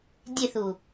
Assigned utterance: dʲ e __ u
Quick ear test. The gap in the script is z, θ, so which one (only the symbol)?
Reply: θ